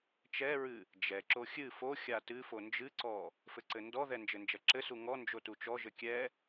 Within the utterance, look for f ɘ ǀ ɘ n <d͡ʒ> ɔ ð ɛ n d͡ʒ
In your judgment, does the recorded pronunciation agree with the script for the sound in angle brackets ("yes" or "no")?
no